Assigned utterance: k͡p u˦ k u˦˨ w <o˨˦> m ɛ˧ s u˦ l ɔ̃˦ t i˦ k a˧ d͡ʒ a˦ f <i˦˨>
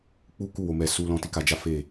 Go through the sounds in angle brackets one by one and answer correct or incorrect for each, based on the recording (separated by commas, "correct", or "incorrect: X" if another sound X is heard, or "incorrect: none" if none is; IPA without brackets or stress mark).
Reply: correct, incorrect: e˦˨